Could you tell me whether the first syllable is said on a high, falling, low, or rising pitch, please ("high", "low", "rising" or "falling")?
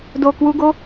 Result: low